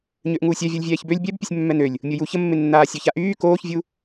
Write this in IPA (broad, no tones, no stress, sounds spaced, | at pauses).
ɲ ø ʔ ŋ uː sʲ œ vʲ ɔ lʲ vʲ ɛː ç b ø lʲ bʲ ɛ b pʲ ø sʲ mː ɛ n ø lʲ | mʲ o j u ç ə mː e nː aː sʲ œ ç a ʔ yː k oː ç vʲ u